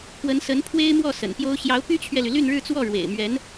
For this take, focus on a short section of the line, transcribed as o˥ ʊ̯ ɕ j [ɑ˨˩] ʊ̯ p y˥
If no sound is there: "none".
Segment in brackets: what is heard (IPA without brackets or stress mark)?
ɑ˧˥